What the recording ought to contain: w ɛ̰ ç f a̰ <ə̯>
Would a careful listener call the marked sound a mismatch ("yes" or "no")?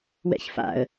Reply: no